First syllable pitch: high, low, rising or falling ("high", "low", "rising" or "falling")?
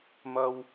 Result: high